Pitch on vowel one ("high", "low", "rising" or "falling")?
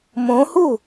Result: rising